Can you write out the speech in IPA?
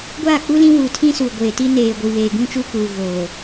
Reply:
ɡʷ aː˦˨ k͡p u˦ l ĩ˦ w u˨ tʰ ĩ˦ s u˨ ɡʷ eː˨ t i˦ n eː˨ ɡʷ i˨ β eː˨ ɡ ũ˦ t͡ʃ u˦ k uː˨ ɣ oː˨

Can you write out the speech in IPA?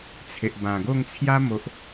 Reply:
t͡sʰ e˨ ʔ b ã˨˩ ɡ o˥˧ ŋ t͡sʰ j a˦ m o˨ ʔ

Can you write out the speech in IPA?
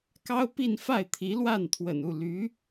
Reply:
k ɑ˥ ʊ̯ p i˥˧ n f a˥˩ ɪ̯ t̪ʰ i˧˥ l w a˥˩ n t̪ʰ w ə̰˨˩ n u˥˩ l y˧˥

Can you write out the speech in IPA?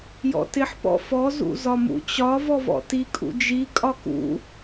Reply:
j ɔ̰ t ɪ ħ p ɔ̰ f ɔ z ṵ z ɒ m ṵ t͡ɕ ɒ v ɔ v ɔ̰ t i kʼ ṵ d͡ʒ i kʼ ɒ k ṵ

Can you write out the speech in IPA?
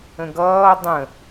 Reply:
ə̃ ɡ ʌː dˤ ə̃

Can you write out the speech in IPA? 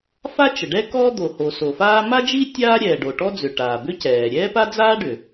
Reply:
f a˥ t͡ʃ ə˩ ɖ ɛ˥ k ɔː˥ d̪ o˩ h o˩ s o˩ f aː˥ m a˥ d͡ʒ i˥ tʲ aː˥ ɾʲ ɛː˩ ɖ o˩ ʈ ɔ˥ d͡z ʏ˩ ʈ aː˩ b ʏ˥ c ɛː˩ ɾʲ ɛː˥ p a˥ d͡z aː˥ ɖ ʏ˩

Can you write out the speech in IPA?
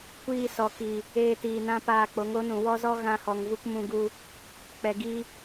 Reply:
kʷ iː˧ s ɔ˨ k i˨ | eː˧ t iː˨ n ã˦ p aː˧ k͡p o˨˦ ŋ o˨˦ n ũ˨ w ɔ˦ z ɔ˦ ɣ ã˧ h ɔ˨ ŋ v u˧ k m ũ˧ ɡ u˧ | k͡p ɛ˨ ɡ i˧

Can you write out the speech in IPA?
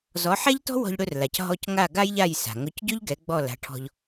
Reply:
z ɔ˩˥ ħ ɛ˥ ʎ t ɔ̤˥ w ɔ̤˧ ʎ ɽ ɵ˧ r l a˩ c ɦ ɔ˧ c ŋ a˥˩ ɡ a˥ j ʎ a˥˩ j s a̤˩ ŋ ɵ˩˥ c ɟ ɵ˥ ʎ ɡ ɛ˩˥ ɡ͡b ɔ˥˩ l a̤˩˥ ʈʰ ɔ̤˧ ʎ

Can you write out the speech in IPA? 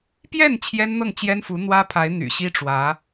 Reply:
p j ɛ˥˩ n t͡ɕʰ j ɛ˥ n n̪ ɤ˥˩ ŋ t͡ɕ j ɛ˥ n f u˧˥ n̪ w ä˥ pʰ a˧˥ ɪ̯ n̪ y̰˨˩ ɕ i˥ ʈ͡ʂ w ä˧˥

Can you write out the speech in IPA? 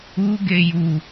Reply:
u ɡ e j u

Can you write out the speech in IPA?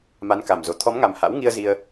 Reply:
m a˨˦ n k a˨˩ m z o˨˩ t̪ʰ ɔ˨˦ m ŋ a˨˩ m h a̰˧˥ w ŋ i˧ ə̯ z i˧ ə̯

